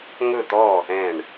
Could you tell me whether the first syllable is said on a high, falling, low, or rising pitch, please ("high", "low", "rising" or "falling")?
falling